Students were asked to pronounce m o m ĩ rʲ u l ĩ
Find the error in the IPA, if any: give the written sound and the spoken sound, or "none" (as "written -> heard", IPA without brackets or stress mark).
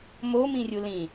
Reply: none